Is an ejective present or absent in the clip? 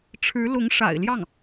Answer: absent